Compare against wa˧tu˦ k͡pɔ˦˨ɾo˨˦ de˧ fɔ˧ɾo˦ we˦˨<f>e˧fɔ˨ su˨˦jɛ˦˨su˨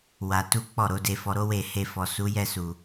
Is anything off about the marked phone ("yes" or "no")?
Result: yes